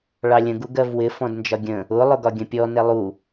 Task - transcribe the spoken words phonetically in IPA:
ɭ ɑ lʲ ə̃ ɡ u ɡ ɜ v w ɪ f ɔ̃ d n d͡ʒ ɒ ɡʲ ə̃ | ʊ lˠ ʊ ɡ ɒ ɡʲ ə̃ pʲ ɔ n ɛ lˠ u

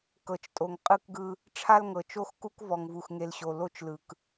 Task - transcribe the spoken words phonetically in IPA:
k ɤ˨ t͡ʃ tʼ o˨ ŋ qʼ ɯ˦ k ɡ ɯ˦ | ʈ͡ʂʰ a˦ l ŋ ɤ˨ t͡ʃ o˦ x k u˦ k v ɔ˨ ŋ v u˨ x ŋ e˨ l ɕ o˨ l o˦ t͡ʃ l ɯ˨ k

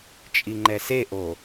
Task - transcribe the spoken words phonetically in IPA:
t͡ʃʼ i ŋ͡ǃ ɛ s e ʔ o

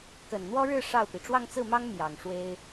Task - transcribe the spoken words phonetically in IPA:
k ə˨˩ n n̪ w ɔ˥ ɻ ɻ̩˥˧ ʂ ɑ˥˩ ʊ̯ p i˩ ʈ͡ʂ w ɑ˥˧ ŋ t͡s ɹ̩˥˩ m ɑ˥ ŋ m j ɑ˨˩ ŋ ʂ w e˥ ɪ̯

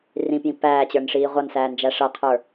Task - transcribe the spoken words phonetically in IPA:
r ĩ p j ĩ p æː t͡ɕ ə˞ n ʂ iː ʁʷ ʌ n s æː n d͡ʒ æ ʂ ʌ qʰ ə˞

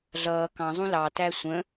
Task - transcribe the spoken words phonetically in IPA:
ɮ ʌː k ɑ̃ zˤ ũ l ɑ t æ sʷ ə̃

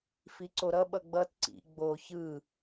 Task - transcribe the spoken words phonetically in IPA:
f i ǀ o ɾ ʌ ɓ ʌ ɡ͡b ʌ t ǀ ḭ ɡ͡b o ç ɯ

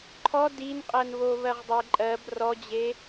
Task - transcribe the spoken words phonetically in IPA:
ǃʰ ɔ d i n qʼ ɜ n β o β ɜ ʁ dˤ e ǃʼ ɜ b r ɔ d͡ʑ e

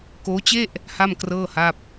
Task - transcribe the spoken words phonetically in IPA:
k oː˦˥ t͡ɕ e˥˩ ʔ | h a˥˩ m k r ɤː˥˩ h a˥˩ p̚

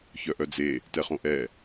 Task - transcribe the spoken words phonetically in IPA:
ç œ ʔ œ d͡z e | t ɛ χ õ ʔ ɛ

